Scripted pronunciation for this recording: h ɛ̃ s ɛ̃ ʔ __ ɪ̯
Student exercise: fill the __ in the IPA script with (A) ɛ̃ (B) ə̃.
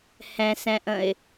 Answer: B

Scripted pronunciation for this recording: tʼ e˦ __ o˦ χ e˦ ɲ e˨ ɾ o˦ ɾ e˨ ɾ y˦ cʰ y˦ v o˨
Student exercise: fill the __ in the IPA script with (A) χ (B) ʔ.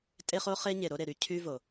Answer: A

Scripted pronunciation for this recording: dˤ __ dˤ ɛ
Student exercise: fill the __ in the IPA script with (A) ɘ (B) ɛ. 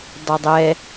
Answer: A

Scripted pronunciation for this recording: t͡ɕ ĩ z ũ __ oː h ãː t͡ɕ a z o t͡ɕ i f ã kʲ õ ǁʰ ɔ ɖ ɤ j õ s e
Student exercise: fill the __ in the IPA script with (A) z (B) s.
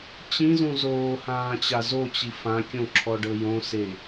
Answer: A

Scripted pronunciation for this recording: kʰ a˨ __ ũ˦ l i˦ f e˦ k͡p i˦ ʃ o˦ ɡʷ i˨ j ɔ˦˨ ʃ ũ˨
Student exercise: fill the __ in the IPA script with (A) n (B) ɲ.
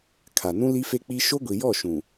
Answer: A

